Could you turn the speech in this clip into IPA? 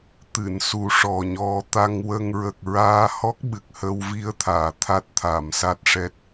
t̪ ɨ˨˩˨ n s u˨˩ ʂ ɔ˨˩ ɲ ɔ˨˩˦ t̪ a˧ ŋ w ə˧ ŋ ɹ ə˨˩ k̚ ɹ aː˧ h ɔ˦˥ k̚ ɓ ɨ˨˩ k̚ h ə˧ w v i˧ ə̯ t̪ʰ aː˨˩˨ t̪ʰ a˦˥ t̚ t̪ʰ a˨˩˨ m s a˦˥ t̚ ʂ ɛ˦˥ t̚

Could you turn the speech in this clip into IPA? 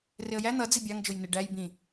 r ɪ ə̯ j æ n̪ ʌ d͡z i bʲ ɑ ŋ d͡ʒ ʊ j n ɪ ɖ æ j b ĩ

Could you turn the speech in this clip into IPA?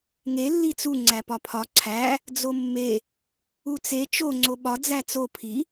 ŋ e lː i t͡s u ŋ͡ǀ æ p ɒ pʰ ɒ ǀʰ æ | d͡z o mː e | u t͡s e t͡ʃ o ŋ͡ǀ o ɓ ɒ d͡z æ t͡s o pʰ i

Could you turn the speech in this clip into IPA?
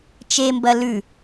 t͡ʃ e m b ɐ l ʉ

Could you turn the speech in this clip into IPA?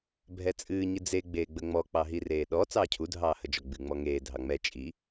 bʱ ɛ t͡sʼ ɨː ɲ ɨ d͡z e ɡ͡b eː ɡ͡b ə ŋ͡m ɔ k͡p ɑ ɦ i r eː ɗ ɔ t͡s ɑː cʰ u dʱ ɑː h ə d͡ʒ ɔ ɡ͡b ɨ ŋ͡m ɔ ŋ eː dʱ ɑ ŋ͡m ɛ t͡ʃʼ i

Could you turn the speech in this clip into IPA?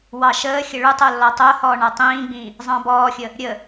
w ɑ ʃ əː xʲ ə ɭ u tˤ o lː ɔ tˤ o h ɔː ɳ a tˤ ĩː ɡ͡b ĩː | zˤ ɑ̃ b ɔː xʲ ə | ɾʲ ə

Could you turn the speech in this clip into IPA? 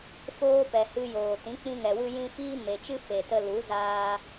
f oː˦ p ɛ˨ h ɨ˧ j oː˨ t ĩ˨˦ k͡p ĩ˧ ŋ ɛ˨ w ɨ˧ j ĩ˧ f iː˦ m e˨ t͡ʃ ɨ˦ f e˨ t ə˧ l u˨˦ z aː˧

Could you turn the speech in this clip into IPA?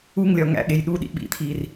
u ŋ lʲ ɒ ŋ æ̰ ɠ e j ɗ u ɗ ḭ ɓ ḭ t̪ʰ i r

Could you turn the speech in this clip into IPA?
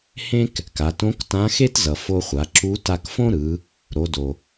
h ẽ˥ k | k a˩˧ t õ˧˥ k t ã˧˥ x e˥ t z ʌ˩ f o˧ χʷ a˩˧ ǁ u˧˥ t a˧ k f õ˥ ɾ ɯ˩˧ | ɾ o˩˧ d o˩

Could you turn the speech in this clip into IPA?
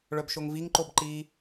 ɭ œ b ʃ o ŋ v i ŋ ǃ o b ǃ i

